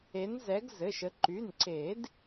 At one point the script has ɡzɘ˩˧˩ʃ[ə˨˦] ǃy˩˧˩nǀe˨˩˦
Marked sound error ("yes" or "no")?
no